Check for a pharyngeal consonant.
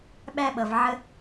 present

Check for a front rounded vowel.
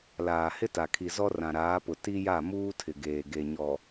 absent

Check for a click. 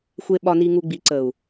present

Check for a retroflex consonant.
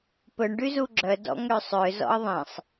present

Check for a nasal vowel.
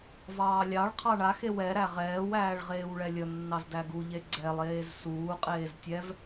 absent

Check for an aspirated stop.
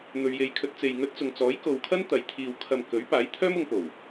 present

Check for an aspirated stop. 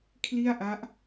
present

